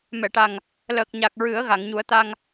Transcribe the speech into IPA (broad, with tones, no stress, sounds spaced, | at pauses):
m ɛ˨˩˨ ʈ a˨˩ ŋ | l əː˨˩ k̚ ɲ a˨˩ k̚ ɹ ɨ˨˩˦ ə̯ ɣ a˨˩˨ ŋ ɲ u˨˩˦ ə̯ t̪ a˧ ŋ